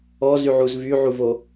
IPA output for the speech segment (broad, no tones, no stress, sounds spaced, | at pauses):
ɔ z y ʕ u z v y ʕ u v o